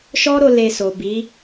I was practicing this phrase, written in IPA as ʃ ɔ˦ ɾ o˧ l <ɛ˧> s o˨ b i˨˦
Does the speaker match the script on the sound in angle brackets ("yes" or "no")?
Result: no